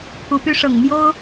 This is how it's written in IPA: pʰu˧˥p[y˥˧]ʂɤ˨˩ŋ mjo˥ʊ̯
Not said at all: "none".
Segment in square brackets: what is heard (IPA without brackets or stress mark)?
y˥